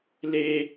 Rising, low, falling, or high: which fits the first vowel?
high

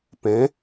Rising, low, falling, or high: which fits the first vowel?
rising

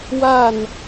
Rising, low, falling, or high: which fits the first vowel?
falling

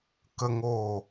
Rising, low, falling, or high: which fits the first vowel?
high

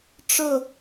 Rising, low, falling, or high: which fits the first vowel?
falling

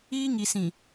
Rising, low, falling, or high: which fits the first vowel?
high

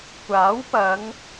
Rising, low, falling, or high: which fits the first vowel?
rising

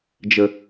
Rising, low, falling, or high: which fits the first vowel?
low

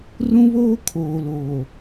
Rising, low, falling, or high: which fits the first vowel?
high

